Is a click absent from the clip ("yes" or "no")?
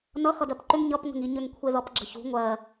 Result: no